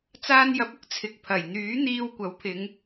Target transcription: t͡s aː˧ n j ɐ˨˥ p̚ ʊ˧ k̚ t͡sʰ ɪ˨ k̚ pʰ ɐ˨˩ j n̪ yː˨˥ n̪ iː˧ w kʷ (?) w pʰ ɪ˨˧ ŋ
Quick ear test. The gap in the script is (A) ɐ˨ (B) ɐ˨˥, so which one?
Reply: B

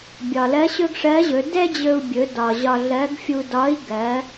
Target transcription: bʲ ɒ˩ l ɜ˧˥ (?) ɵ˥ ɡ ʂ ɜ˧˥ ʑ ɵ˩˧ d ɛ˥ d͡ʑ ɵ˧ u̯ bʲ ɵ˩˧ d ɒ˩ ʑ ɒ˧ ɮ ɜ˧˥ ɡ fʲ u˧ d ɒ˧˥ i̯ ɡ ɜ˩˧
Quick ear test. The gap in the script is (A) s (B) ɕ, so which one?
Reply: B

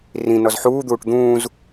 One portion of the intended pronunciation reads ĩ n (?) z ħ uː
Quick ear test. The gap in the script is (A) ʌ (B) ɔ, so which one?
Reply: B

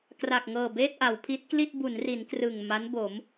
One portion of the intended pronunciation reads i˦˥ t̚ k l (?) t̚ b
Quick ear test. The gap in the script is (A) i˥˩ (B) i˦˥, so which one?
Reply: A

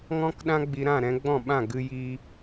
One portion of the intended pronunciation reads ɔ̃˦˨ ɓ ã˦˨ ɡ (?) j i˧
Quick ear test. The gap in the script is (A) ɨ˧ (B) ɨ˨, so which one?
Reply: A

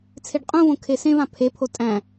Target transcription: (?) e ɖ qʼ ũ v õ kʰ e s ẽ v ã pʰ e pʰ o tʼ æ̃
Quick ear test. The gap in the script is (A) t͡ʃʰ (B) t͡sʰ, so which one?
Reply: B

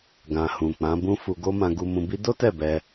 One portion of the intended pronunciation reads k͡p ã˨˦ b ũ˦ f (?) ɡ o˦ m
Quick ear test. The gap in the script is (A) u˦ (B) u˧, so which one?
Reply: B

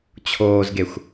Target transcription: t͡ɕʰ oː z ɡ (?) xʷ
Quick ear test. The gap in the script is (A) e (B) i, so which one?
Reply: A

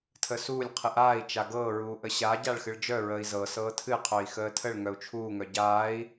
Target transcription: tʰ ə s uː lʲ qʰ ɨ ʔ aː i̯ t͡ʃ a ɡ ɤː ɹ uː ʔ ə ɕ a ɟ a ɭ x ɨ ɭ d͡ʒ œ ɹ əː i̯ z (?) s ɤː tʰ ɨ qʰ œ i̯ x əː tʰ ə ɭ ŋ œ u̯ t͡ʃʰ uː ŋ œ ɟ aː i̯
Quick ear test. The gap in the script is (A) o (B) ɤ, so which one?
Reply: B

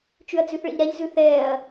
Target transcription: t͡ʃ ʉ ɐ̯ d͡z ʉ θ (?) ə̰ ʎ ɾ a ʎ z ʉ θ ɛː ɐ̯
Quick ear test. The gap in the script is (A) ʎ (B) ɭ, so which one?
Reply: B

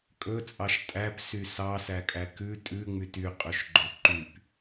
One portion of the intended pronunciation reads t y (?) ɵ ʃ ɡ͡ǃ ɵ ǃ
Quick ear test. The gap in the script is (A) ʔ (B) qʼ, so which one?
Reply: B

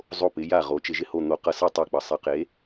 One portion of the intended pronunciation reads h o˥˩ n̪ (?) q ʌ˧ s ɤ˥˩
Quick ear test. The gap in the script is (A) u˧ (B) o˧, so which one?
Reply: B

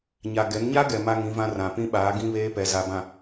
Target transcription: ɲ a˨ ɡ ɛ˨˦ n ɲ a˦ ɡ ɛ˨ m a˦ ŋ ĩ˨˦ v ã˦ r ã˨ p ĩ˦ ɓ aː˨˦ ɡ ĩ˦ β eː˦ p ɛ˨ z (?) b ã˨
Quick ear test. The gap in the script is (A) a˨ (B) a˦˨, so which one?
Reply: A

